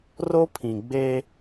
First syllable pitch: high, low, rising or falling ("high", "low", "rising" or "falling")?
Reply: high